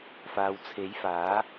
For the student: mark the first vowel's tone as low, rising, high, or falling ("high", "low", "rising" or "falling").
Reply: low